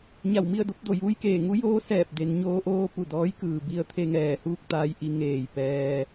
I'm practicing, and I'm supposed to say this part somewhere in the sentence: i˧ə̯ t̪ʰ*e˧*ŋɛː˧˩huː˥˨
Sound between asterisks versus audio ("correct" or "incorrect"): correct